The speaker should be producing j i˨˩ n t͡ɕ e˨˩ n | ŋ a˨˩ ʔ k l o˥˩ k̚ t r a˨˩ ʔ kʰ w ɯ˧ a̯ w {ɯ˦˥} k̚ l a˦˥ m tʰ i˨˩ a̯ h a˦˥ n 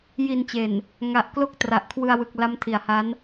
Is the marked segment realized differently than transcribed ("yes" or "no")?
yes